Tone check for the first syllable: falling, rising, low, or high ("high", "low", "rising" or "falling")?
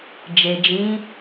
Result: low